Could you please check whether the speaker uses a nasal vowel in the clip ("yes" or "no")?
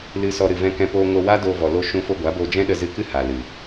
yes